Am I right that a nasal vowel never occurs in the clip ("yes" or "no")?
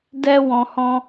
no